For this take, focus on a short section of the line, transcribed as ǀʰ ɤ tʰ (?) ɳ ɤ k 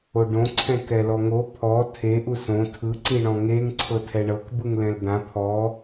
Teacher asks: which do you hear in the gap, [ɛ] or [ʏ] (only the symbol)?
ɛ